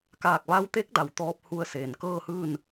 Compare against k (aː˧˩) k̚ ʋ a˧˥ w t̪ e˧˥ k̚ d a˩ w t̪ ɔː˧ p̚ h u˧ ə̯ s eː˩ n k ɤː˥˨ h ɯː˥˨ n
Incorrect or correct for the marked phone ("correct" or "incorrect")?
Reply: correct